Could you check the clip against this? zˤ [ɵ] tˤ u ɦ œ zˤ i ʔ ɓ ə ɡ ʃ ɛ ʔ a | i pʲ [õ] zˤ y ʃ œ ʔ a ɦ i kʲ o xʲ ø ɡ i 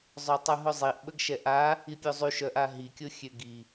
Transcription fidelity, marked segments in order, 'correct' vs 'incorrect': incorrect, incorrect

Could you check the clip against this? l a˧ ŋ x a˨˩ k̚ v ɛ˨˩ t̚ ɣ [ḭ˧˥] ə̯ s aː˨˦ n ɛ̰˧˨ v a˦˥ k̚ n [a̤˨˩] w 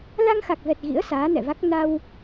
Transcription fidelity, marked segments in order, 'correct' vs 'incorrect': correct, incorrect

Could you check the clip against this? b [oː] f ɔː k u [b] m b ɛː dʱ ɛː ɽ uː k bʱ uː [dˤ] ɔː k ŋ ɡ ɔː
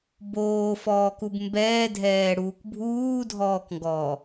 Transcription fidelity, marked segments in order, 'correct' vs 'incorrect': correct, correct, incorrect

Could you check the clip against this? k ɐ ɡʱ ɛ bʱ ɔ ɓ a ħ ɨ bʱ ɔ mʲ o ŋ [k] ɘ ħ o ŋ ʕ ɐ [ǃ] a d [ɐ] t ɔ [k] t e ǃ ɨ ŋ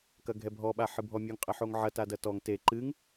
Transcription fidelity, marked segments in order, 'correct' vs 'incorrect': incorrect, incorrect, correct, incorrect

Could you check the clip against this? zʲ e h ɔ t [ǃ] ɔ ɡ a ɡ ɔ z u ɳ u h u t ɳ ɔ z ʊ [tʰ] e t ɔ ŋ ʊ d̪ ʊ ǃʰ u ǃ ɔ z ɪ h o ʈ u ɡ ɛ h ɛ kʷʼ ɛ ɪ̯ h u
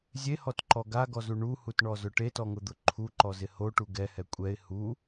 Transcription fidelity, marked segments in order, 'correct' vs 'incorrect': correct, incorrect

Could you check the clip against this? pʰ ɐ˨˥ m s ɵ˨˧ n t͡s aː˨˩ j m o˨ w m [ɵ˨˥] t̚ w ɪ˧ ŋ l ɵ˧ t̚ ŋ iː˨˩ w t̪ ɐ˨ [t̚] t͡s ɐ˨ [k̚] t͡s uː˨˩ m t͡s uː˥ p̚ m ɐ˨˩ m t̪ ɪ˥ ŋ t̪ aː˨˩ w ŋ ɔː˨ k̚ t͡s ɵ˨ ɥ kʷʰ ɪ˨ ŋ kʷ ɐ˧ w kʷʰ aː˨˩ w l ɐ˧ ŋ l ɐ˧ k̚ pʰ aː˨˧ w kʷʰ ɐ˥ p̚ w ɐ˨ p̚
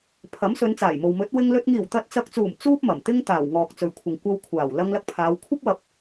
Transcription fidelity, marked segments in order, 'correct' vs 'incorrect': correct, correct, correct

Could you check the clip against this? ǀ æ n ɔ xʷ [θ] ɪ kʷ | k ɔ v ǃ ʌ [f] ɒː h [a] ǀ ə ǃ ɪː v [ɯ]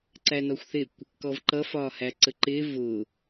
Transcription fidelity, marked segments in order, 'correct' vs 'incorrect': correct, correct, incorrect, incorrect

